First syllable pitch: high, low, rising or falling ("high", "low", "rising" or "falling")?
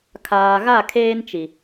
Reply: low